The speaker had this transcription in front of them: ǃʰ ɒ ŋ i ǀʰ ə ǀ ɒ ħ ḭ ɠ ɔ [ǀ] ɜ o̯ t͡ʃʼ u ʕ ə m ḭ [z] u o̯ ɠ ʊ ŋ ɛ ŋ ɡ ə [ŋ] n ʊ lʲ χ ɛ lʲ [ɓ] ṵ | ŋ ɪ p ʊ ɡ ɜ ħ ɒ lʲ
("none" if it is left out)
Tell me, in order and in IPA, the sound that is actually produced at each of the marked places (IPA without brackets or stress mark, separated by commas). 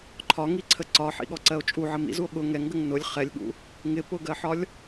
ǀ, z, ŋ, ɠ